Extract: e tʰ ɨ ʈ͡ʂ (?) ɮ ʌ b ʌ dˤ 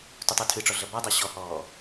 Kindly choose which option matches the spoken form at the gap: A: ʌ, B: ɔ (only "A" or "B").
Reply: B